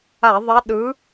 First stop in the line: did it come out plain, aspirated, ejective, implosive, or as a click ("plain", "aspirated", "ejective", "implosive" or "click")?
implosive